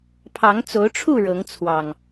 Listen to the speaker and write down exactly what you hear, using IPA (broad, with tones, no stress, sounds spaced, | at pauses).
pʰ ɑ˨˦ ŋ t͡s o˨˦ ʊ̯ ʈ͡ʂʰ u˥˨ ɻ ɤ˨˦ ŋ t͡sʰ w ɑ˨˩ ŋ